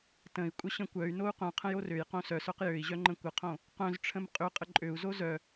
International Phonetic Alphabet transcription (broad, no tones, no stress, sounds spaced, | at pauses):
t ə̃ i̯ kʷʼ ə ɕ ə̃ kʷ œ y̯ n o u̯ q œ̃ qʰ ə̃ j o r ø j q õ s œ s œ q j ø i̯ ʑ œ ŋ͡ǃ ə̃ kʷ ə qʰ õ | q œ̃ z ʈ͡ʂʰ ə̃ m qʼ ʏ qʼ ə ǃʼ ø u̯ z o z œ